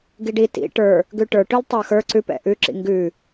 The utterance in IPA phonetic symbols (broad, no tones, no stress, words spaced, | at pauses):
ɡiɖi tḭ ʈə˞ | ɡʉʈə˞ʈʉl tˤə˞xə˞ ǀʉpɛ̰ ʔʉǁḭ ŋɡʉ